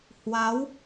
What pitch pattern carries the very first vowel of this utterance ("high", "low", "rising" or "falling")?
rising